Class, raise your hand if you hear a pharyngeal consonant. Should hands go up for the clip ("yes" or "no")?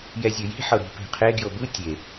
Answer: yes